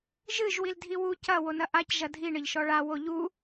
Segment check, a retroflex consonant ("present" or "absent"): present